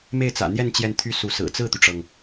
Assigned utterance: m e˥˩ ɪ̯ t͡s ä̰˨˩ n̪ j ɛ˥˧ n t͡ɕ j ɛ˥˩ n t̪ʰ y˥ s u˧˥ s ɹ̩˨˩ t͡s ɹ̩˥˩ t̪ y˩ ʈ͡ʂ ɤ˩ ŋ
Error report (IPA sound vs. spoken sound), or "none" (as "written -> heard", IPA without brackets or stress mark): none